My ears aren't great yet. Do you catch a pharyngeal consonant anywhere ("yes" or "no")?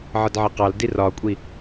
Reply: yes